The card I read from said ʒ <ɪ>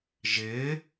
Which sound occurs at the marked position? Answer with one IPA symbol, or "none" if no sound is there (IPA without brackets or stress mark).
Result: ɪ